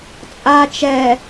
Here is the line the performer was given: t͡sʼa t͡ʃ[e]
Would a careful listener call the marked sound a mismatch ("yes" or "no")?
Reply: yes